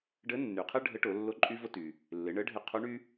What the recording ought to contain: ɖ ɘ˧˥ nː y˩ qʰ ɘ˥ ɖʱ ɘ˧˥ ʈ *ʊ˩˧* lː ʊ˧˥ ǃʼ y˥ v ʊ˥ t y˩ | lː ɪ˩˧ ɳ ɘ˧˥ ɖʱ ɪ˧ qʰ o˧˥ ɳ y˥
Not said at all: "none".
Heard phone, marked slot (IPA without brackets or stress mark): ʊ˩˧